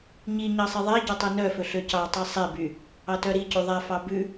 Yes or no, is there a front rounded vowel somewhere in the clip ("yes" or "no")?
yes